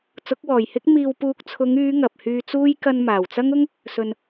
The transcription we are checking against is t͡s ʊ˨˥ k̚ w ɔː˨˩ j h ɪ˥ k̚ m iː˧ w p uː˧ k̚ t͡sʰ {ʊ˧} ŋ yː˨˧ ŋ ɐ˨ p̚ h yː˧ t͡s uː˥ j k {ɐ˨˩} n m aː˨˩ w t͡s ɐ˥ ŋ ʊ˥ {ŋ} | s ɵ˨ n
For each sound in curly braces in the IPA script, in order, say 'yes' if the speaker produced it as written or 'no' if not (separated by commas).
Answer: no, no, yes